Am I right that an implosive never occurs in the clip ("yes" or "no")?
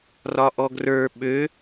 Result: no